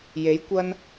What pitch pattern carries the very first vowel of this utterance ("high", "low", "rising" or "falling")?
rising